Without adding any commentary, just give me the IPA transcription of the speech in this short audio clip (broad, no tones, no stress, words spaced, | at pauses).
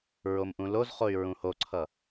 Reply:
ɹomʔũlozχoy̯ ɹũhoǀʰʌ